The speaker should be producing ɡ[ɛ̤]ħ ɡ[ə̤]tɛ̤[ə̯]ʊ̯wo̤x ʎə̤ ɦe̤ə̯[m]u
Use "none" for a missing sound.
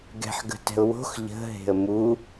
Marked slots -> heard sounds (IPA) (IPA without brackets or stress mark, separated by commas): ɛ̤, ə̤, none, m